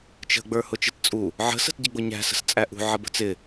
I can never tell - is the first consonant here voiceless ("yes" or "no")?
yes